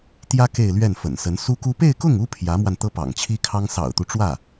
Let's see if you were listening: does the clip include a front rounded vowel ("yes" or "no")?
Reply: no